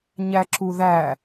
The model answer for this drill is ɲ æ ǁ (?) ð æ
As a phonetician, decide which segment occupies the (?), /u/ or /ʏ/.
u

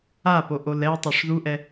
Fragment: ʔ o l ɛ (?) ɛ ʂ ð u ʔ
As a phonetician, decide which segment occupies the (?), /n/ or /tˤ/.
tˤ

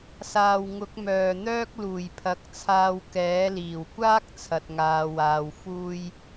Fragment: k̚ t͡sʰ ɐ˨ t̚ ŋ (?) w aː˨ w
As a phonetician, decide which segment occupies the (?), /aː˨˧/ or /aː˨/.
aː˨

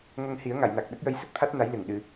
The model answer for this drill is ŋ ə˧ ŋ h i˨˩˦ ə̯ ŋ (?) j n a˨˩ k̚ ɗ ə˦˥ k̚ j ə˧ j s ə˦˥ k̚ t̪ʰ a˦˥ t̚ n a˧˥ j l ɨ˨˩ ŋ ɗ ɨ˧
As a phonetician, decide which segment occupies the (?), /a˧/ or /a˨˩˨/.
a˨˩˨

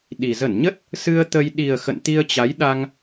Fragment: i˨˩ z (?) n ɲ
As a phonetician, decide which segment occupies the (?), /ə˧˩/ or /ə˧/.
ə˧˩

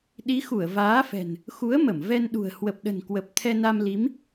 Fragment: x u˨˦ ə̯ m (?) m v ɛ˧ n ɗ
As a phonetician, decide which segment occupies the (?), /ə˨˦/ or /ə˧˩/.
ə˧˩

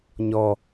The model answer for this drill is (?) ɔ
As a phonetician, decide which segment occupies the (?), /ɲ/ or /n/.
ɲ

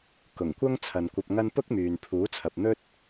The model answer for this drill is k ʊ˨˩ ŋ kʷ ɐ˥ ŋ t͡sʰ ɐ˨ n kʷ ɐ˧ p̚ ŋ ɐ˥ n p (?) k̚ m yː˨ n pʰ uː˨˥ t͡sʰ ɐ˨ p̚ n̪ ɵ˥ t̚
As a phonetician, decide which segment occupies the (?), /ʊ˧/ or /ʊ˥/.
ʊ˥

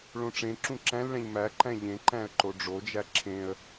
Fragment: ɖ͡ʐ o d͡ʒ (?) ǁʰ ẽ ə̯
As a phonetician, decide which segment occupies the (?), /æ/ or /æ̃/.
æ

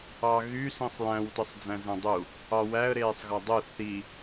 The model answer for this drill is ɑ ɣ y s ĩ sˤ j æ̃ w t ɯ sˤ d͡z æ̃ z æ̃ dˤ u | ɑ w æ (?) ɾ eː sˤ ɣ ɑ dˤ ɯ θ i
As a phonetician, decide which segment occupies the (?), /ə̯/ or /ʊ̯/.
ə̯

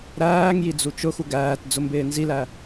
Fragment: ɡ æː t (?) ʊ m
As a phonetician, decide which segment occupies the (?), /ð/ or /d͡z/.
d͡z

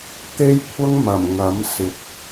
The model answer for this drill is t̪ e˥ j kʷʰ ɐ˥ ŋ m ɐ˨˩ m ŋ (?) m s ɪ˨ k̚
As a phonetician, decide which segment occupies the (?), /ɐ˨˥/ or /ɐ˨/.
ɐ˨˥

